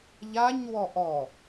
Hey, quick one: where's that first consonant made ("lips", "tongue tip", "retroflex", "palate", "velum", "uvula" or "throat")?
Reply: palate